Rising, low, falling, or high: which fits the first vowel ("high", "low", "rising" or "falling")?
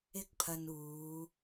high